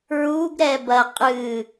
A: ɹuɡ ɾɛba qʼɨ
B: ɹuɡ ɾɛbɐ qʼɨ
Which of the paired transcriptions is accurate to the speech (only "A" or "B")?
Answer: B